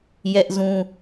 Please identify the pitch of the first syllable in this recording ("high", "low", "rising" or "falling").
high